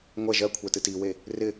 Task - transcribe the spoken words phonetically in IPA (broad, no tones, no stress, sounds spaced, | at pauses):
ŋʷ ɛ ʒ ɜ kʷʰ ɛ t ɨ t i w e | r ɪ